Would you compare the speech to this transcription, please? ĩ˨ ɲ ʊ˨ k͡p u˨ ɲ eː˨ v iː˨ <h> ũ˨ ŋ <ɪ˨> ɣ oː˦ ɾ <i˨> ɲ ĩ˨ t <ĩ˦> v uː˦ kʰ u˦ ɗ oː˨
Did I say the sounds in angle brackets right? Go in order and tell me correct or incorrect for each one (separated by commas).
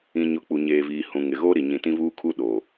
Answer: correct, correct, correct, correct